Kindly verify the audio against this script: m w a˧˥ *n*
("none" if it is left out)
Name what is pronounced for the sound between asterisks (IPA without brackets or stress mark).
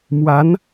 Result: n